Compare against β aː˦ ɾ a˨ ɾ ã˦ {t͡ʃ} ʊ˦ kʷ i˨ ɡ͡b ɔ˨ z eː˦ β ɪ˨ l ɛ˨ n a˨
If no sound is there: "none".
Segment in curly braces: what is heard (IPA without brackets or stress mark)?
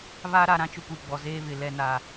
t͡ʃ